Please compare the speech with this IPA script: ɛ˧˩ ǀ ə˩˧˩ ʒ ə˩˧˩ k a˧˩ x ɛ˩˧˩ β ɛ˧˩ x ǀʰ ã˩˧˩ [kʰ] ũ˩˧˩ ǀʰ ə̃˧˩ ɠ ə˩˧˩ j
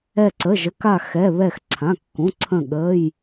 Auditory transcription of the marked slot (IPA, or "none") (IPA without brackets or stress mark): kː